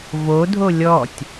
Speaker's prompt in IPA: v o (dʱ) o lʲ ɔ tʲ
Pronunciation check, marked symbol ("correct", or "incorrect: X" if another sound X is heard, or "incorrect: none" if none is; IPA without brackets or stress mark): correct